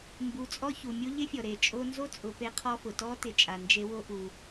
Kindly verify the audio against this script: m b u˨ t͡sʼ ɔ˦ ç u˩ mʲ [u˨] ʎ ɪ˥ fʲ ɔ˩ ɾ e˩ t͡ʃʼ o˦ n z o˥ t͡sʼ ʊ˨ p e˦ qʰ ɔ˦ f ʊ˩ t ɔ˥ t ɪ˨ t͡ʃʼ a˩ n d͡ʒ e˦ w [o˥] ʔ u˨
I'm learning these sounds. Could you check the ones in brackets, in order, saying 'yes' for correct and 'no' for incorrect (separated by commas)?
no, yes